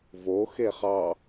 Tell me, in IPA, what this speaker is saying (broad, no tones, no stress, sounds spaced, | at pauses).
v o x e χ ɑ